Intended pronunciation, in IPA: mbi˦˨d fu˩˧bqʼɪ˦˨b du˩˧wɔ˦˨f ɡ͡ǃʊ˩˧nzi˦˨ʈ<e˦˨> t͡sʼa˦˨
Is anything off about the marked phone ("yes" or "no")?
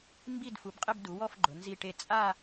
no